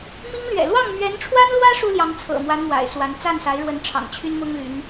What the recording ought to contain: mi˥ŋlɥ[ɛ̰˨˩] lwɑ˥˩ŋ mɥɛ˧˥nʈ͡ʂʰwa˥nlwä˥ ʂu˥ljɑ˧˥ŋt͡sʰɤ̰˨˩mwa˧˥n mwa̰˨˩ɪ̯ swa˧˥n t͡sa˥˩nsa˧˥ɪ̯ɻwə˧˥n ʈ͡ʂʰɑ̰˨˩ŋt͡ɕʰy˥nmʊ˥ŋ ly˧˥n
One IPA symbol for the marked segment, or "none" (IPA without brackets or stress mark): ɛ̰˨˩